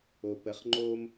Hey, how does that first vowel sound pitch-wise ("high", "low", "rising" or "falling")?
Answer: low